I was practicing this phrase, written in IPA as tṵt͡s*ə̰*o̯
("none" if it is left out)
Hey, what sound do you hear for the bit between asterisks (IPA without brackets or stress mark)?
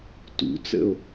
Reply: ə̰